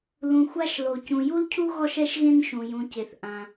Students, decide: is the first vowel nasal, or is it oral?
nasal